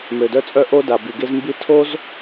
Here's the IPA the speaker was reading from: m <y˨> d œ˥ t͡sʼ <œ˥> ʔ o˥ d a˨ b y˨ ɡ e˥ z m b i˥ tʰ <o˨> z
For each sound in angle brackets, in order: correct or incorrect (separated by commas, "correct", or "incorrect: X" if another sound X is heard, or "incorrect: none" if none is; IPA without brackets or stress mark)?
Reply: incorrect: ø˨, correct, incorrect: o˥